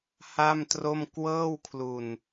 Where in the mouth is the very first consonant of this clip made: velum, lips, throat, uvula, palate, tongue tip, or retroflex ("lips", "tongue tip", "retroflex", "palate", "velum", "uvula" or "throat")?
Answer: throat